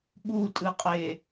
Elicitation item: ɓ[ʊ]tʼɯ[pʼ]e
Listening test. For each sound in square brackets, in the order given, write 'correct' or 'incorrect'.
incorrect: u, incorrect: qʼ

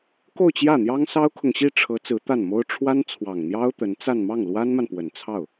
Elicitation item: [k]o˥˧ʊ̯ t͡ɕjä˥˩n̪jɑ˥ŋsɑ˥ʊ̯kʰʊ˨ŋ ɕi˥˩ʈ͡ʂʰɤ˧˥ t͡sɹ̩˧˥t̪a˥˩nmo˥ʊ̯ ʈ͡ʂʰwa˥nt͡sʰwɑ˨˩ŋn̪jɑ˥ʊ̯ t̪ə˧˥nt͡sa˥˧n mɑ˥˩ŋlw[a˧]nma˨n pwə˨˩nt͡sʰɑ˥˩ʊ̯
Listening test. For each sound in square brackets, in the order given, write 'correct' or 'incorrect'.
correct, incorrect: a˥

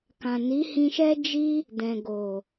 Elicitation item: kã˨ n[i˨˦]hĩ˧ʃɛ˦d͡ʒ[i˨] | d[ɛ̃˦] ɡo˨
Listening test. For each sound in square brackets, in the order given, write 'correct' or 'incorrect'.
correct, incorrect: i˦, incorrect: ɛ̃˨

